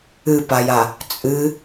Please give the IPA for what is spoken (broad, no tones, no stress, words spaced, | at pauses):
ɨpaja | t͡sʼɨ